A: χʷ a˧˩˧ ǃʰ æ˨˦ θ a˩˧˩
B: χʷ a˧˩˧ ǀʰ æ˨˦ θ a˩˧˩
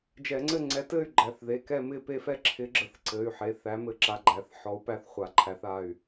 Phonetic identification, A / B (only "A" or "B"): A